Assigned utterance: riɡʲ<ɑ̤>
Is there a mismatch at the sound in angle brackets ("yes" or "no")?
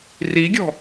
yes